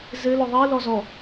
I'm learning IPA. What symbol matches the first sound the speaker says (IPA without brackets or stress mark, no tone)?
z